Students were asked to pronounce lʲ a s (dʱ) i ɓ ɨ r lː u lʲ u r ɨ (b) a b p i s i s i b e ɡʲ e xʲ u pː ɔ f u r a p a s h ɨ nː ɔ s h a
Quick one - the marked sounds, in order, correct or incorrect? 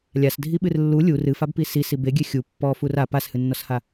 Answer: correct, incorrect

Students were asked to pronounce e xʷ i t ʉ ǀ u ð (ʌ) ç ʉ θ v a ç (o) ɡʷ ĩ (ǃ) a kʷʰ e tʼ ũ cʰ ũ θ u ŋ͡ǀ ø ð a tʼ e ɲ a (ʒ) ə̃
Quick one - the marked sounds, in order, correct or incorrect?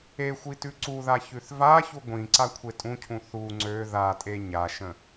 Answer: incorrect, incorrect, incorrect, incorrect

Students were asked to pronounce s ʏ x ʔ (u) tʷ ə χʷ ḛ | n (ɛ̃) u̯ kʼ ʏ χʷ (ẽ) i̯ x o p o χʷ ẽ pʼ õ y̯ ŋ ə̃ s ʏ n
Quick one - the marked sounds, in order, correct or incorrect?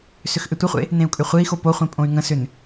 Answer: incorrect, incorrect, incorrect

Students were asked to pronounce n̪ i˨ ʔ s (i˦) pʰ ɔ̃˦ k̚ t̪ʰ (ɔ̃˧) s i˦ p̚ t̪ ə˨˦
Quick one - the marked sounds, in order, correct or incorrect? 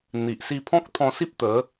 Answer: incorrect, correct

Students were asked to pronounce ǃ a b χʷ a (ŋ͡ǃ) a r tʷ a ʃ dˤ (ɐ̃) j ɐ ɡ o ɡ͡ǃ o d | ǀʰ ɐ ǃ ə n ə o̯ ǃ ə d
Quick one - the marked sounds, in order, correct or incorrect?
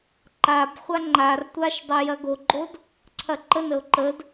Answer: correct, incorrect

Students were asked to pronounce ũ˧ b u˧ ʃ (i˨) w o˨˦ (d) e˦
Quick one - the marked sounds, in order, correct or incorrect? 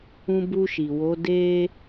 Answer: correct, correct

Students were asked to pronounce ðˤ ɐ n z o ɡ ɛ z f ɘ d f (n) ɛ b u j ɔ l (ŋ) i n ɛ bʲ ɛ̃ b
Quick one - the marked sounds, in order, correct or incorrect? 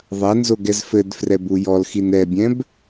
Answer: incorrect, incorrect

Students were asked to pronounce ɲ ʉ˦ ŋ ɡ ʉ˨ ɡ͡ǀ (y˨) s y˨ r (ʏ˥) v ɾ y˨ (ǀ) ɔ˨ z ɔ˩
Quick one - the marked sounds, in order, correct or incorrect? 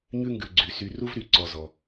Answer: incorrect, incorrect, correct

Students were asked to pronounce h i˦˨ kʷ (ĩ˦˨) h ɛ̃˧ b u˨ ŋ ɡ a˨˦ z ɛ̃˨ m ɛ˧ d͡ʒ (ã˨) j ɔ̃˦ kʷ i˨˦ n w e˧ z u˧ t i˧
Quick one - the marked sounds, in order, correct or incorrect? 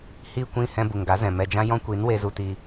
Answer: correct, incorrect

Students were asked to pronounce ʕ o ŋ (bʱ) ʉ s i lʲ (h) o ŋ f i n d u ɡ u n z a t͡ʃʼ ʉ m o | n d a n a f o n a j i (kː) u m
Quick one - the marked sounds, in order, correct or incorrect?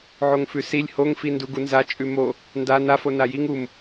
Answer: incorrect, correct, incorrect

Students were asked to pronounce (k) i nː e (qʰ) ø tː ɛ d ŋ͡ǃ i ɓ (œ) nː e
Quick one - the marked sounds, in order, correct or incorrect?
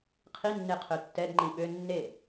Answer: incorrect, correct, incorrect

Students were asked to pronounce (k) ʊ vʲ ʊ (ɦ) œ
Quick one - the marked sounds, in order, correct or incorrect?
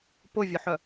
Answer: incorrect, incorrect

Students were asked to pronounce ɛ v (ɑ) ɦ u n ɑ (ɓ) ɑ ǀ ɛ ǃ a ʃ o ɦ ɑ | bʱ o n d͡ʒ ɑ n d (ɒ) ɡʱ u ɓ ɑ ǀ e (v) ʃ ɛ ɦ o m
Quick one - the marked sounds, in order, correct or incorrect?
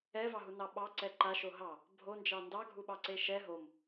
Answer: correct, correct, incorrect, incorrect

